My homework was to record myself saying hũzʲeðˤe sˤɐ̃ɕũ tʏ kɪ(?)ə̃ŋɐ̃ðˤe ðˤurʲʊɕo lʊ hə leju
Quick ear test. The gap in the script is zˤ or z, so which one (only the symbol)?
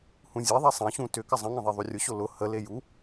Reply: zˤ